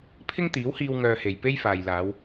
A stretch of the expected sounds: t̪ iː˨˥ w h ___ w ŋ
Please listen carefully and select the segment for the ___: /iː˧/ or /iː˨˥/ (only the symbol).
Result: iː˧